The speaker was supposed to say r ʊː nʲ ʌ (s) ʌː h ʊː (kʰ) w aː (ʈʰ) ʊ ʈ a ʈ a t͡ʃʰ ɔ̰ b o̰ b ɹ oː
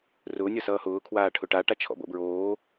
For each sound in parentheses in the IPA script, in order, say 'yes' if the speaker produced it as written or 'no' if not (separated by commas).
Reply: yes, yes, yes